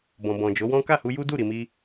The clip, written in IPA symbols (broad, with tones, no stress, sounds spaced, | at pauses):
b ɔ̃˨ b ɔ̃˨ d͡ʒ o˨˦ w ɔ̃˦ k a˦˨ h u˧ j u˦ d u˦˨ ɾ i˨ m i˧